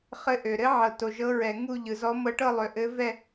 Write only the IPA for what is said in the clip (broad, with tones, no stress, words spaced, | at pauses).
χɘ˧˥ʔø˨ ɾɘ˧˥ʕɤ˨ to˨ʒɤ˧˥ɹɛ˨ ŋu˥˧ʎɯ˨zɔ˧˥ mɤ˧˥ʈɤ˥˧lˠø˨ʔɘ˧˥ vɛ˥˧